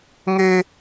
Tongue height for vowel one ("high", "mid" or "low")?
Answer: mid